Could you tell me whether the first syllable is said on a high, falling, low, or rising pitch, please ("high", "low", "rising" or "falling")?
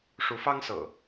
rising